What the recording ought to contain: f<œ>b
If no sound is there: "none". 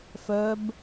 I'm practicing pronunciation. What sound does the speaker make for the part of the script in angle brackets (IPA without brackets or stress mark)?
œ